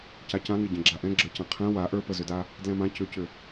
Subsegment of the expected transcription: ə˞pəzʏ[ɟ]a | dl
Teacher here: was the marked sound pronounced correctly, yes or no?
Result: no